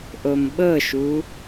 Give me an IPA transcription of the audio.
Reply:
ʔomɓɤʃu

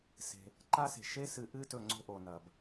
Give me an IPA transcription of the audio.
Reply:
se̤˩ | ǃa˦se̤˩ ʃe˥sɨ˨ ʔɨ˦tɵ˨ ŋ͡ǀo̤˦ʔo˩nɐ˩b

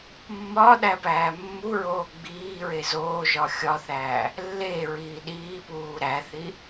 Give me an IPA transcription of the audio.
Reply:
mːɒː ɗæpæːmːuɹoː ɡ͡biːɹe zoːʒɒ xʲɒθæː | lːeɹiː ɗiːpuː ɾæθi

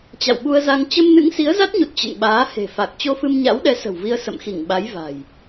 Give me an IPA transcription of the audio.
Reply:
t͡ɕa̰˧˨wɓu˧ə̯za˧ŋ t͡ɕə˧mnɨ̰˧˥ŋ si˨˦ə̯za˦˥t̚ɲu˨˩t̚ t͡ɕə̰˧˨nɓaː˨˦ he̤˨˩fa˨˩k̚ t͡ɕo˧fɨ˧mɲa̰˧˥wɗɛ˨˦ sə̤˨˩wvi˧ə̯ sə̰˧˨mxi˧˩ŋɓa˨˦j va̤˨˩j

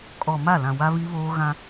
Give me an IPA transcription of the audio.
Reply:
kʼɔ˨ ma˦˨lã˨ wa˦βi˦βoː˦ ɣã˦

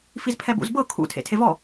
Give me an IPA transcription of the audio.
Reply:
fizpʰɛbṵzbɤ kʰṵ tʰḛtʰevɔ

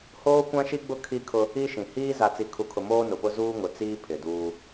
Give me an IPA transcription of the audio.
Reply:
hoː˦kʷã˦ʃi˦ɡ͡bʊ˦ kʰi˦kʰʊ˦ | i˦ ʃĩ˨ hiː˦ za˨t͡si˨kʰu˨kʰʊ˨ moː˦nʊ˨pʊ˦ zuː˦ŋʊ˨t͡siː˦ pʰɪ˨duː˦

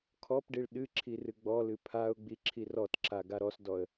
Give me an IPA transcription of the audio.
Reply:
kʰɔpɖiɭ ɗɨǁʰi rɨɡ͡bɔlɨ pʰaʊ̯ɡ͡bi ǁʰirɔtǁa ɡaɾɔsdɔə̯

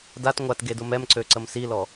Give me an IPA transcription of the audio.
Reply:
dat ŋʷatɡedʊ mɛmǀøǀəm silɔ

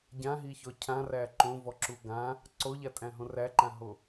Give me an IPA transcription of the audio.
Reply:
ɟãɦiçɔ cʰãræ ǃõvɔǁu ɡã | ǀoʎatʼæ̃ɦõ ræǃãɦo

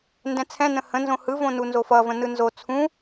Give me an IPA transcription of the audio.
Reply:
ndɛ̃t͡sʰɛ̃ nə̃hə̃nzõ hɯvõnu nzofʌvə̃ nɯnzo t͡sʰũ

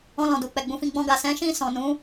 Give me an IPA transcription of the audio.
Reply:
ɔ̃˧lɔ̃˨du˨k͡pɛ˨ ɡ͡bũ˧fĩ˧ ɡ͡bɔ̃˧ɡa˨ sɛ̃˨˦ʃĩ˦˨ sɔ̃˨nũ˨˦

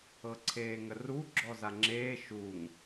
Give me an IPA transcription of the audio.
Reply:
ɤǀʰeːŋəru ɡ͡ǁɔzaŋ͡ǁeː ʃuŋ

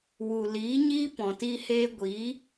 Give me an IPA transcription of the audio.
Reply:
wu˨ liː˨˦ɲiː˦pɔ̃˨ti˧ heː˧ɡʷiː˨˦

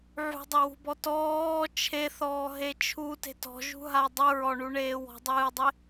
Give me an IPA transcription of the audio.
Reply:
ʕṳdˤewṳbɔ tɔː t͡ʃʰeθɔːɦe t͡ʃʰute̤ tɔ̤ʒṳɦa dˤɨɹɔɳuɳeː wɔ̤dˤɨːdˤe

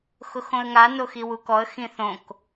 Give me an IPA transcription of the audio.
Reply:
xʊxõə̯ŋa noxiwukɔə̯ xĩθõk

